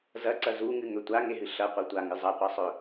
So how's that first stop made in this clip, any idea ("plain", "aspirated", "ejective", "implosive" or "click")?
click